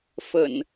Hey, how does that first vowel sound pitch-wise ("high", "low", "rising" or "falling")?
low